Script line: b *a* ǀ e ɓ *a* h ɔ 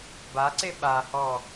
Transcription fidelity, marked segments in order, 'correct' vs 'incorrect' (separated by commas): correct, correct